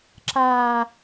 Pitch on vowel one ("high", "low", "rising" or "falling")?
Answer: high